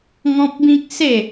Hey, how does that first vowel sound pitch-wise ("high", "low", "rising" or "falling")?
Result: high